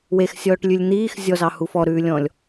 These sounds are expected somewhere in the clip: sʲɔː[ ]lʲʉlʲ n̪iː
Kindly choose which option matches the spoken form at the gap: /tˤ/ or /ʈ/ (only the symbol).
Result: ʈ